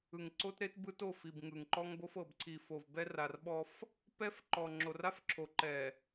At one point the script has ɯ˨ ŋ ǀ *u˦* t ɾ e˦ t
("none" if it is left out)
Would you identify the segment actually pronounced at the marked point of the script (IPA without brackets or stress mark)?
o˦